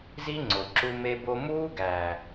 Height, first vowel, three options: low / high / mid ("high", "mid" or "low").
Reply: high